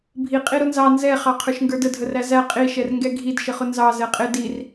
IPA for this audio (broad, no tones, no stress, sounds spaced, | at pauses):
bʱ i qʼ i ɾ ʊ n z ɑ n z ɛ χ ɑ qʰ ə˞ ʃ ŋ ɡ ə˞ d ə dʱ ə r æ z æ qʼ i ʃ ɛ r ŋ ɡ ɛ ɡʱ i d ʃ ə χ ʊ n z ɑ z ɛ qʼ ɪ d i r